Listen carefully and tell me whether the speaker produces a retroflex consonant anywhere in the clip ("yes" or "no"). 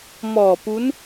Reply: no